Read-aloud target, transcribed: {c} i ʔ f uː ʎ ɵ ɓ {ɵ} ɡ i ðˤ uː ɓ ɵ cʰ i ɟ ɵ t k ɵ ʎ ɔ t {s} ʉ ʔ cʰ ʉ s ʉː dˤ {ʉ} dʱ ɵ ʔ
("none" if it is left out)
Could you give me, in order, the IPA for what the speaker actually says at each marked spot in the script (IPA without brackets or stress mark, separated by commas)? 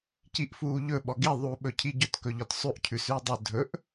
c, ɔ, sˤ, ø